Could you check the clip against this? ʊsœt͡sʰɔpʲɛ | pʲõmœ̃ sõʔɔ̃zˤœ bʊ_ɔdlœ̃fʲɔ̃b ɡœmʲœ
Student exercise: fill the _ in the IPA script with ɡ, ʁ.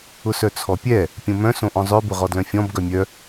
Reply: ʁ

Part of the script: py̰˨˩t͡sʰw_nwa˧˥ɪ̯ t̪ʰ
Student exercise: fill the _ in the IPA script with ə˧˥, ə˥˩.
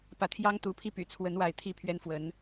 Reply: ə˧˥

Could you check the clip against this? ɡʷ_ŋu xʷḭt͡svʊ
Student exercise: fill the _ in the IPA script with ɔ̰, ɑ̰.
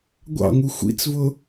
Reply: ɑ̰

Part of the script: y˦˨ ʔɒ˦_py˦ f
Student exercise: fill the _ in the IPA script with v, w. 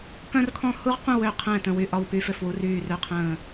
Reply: w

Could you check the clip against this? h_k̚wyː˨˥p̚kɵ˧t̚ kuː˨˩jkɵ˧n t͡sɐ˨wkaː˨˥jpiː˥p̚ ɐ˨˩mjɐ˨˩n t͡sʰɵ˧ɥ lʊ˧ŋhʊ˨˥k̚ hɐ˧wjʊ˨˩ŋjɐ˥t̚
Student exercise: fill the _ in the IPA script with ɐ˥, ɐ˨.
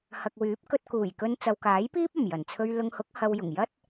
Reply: ɐ˨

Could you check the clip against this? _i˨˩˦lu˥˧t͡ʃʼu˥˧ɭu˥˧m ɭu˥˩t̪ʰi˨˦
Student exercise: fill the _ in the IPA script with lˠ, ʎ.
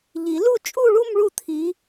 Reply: ʎ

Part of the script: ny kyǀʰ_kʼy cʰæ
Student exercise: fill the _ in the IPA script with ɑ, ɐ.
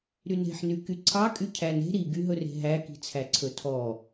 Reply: ɑ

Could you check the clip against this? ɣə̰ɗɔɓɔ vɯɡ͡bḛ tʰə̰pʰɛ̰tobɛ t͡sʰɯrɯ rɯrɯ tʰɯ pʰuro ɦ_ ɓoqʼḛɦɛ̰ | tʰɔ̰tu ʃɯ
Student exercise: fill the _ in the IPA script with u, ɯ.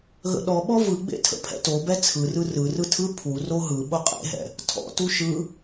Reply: ɯ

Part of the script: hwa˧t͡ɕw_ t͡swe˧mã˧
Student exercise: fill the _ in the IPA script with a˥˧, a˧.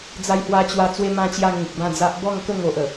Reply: a˧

